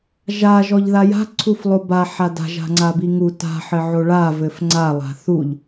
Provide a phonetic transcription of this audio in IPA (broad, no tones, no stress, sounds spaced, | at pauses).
ʒ a ʒ ɔ ʎ ð a j a̤ ǀʰ u f lˠ o b a ħ a d a̤ ʒ a̤ ŋ͡ǀ a b i ŋ u t a̤ ħ ɘ ʕ o ɭ a v ɘ f ŋ͡ǀ a lˠ a̤ θ u ʎ